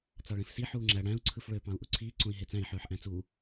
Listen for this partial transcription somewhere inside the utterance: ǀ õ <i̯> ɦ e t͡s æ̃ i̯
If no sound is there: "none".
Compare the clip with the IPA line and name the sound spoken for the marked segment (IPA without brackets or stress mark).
i̯